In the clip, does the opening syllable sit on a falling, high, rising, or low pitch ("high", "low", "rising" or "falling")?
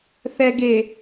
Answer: low